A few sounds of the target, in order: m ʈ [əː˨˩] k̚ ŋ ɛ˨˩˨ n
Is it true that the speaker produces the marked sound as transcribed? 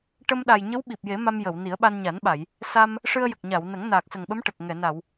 no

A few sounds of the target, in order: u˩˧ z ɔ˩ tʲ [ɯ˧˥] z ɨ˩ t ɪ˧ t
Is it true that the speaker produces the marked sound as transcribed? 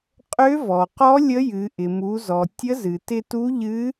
no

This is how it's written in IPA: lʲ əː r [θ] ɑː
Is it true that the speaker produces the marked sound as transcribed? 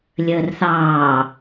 yes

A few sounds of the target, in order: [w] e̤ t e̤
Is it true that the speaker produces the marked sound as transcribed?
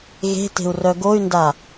no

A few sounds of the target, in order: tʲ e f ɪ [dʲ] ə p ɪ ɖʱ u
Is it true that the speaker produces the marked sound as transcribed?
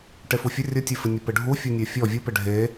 no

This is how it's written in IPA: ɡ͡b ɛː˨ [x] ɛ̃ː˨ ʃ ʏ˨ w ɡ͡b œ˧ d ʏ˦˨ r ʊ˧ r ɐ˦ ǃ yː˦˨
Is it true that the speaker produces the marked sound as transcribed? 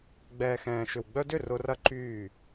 yes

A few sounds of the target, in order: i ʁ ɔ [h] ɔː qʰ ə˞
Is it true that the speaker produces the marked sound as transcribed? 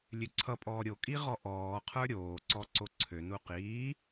no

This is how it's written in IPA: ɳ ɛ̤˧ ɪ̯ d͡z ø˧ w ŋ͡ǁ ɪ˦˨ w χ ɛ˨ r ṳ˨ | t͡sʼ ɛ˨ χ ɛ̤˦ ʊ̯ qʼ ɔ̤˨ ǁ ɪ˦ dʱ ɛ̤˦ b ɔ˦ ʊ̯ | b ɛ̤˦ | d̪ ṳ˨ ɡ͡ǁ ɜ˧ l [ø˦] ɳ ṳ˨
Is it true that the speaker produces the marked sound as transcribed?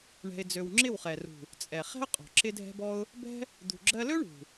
yes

